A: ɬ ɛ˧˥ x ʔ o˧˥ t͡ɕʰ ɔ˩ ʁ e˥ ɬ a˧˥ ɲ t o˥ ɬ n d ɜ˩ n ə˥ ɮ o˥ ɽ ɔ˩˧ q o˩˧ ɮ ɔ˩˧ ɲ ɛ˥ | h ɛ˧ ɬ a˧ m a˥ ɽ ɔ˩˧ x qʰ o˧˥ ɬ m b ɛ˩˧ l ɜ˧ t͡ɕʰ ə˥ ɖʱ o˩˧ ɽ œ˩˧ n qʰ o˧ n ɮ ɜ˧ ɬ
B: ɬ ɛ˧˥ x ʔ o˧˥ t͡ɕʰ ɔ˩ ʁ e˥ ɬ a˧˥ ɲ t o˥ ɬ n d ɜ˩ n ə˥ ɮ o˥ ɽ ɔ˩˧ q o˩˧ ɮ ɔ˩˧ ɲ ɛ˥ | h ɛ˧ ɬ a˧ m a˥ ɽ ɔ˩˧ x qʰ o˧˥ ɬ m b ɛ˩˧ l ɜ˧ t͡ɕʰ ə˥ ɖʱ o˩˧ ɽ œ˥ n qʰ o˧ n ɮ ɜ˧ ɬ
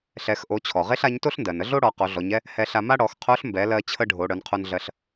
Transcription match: A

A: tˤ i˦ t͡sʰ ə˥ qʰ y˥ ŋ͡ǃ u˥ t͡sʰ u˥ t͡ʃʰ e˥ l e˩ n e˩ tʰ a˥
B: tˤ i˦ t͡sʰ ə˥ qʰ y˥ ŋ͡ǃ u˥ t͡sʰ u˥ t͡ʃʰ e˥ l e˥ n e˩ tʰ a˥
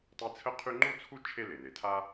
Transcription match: A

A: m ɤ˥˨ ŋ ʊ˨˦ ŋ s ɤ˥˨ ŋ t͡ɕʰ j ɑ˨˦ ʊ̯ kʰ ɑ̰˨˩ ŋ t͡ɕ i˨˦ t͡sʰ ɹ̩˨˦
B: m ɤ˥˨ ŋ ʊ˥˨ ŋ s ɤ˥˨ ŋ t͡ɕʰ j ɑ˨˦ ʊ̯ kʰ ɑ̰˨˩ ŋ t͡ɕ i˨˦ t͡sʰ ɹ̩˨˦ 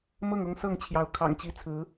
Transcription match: B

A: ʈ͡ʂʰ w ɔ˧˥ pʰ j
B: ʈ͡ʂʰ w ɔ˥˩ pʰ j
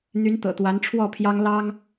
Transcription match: B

